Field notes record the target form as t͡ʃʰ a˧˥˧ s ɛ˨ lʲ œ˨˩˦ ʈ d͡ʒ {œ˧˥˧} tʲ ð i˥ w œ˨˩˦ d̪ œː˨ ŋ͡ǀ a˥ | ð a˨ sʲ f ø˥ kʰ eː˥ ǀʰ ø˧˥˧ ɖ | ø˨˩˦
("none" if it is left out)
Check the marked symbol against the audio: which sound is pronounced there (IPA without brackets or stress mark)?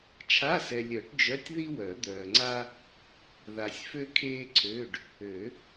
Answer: œ˧˥˧